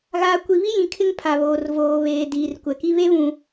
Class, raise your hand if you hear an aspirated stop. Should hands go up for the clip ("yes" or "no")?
yes